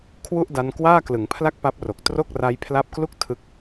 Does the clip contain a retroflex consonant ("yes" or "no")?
no